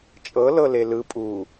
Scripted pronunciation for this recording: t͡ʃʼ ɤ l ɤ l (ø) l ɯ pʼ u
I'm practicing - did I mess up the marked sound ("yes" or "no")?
yes